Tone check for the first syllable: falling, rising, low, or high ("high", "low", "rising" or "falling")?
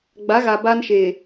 rising